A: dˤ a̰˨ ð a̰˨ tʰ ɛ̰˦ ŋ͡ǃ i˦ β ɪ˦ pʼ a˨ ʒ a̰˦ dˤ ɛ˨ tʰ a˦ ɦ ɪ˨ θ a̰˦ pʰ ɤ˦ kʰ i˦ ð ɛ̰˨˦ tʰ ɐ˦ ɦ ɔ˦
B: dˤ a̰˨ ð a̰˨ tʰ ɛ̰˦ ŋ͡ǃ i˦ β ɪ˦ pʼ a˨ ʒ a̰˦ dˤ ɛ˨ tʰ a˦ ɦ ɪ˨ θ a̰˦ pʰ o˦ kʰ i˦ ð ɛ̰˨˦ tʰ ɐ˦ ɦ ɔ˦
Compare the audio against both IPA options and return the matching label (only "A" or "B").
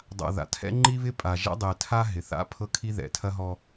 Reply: A